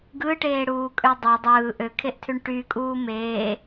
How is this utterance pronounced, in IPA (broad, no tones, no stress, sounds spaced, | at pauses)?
ɡ ɯ ʈ eː ɽ uː kʼ ø dˤ ɑ dˤ ɯː ʔ ø kʰ e ʔ tʰ y ɳ ʈ y kʼ uː m eː